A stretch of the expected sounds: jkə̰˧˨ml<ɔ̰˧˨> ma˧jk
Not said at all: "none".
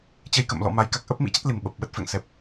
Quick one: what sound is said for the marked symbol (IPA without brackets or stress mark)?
ɔ̰˧˨